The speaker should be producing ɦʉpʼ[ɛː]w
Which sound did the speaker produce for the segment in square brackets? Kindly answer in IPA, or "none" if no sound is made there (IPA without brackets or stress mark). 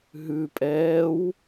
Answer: ɛː